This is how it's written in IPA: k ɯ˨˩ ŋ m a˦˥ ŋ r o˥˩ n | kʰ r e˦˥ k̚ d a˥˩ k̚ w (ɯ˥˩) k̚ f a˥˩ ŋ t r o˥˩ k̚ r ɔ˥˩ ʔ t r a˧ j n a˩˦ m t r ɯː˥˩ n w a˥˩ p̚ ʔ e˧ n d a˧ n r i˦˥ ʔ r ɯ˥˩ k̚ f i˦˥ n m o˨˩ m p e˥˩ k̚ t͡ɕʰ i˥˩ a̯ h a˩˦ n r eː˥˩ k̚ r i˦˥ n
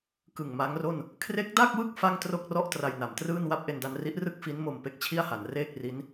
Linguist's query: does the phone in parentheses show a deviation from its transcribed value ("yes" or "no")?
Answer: no